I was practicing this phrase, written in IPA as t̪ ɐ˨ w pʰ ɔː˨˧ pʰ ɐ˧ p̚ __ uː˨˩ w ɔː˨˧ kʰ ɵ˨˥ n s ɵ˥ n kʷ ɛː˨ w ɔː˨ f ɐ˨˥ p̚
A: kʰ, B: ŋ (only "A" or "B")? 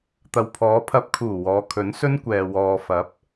A